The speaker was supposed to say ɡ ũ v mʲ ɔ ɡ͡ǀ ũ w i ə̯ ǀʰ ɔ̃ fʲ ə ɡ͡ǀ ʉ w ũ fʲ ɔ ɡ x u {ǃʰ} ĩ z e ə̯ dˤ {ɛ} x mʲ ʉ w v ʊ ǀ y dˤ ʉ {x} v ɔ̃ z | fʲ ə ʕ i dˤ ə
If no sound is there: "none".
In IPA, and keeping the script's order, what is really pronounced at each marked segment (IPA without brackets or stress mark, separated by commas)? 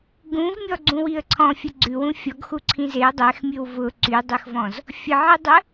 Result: ǀʰ, ɛ, x